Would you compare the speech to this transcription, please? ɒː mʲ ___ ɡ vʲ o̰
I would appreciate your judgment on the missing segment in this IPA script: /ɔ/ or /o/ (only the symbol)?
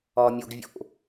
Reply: o